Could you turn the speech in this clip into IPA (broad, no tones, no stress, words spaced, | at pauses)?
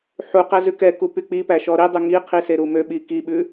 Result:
ħu qæzʉkɛku pyk͡pipæ ʃɔɾidˤʉ ŋiqʰi seɾumøɓi kiɓʉ